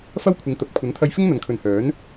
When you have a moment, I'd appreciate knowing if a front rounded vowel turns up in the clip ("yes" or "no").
yes